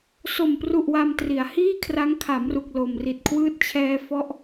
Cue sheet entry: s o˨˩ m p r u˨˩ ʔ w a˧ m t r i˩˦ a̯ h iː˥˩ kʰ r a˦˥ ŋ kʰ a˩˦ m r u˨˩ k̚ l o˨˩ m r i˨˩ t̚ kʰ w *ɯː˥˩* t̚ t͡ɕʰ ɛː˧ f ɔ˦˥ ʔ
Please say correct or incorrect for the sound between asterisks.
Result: correct